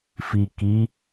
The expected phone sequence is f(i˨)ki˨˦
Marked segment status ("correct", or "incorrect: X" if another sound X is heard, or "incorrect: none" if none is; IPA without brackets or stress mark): correct